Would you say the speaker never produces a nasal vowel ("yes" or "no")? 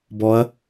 yes